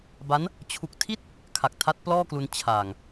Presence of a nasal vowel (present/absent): absent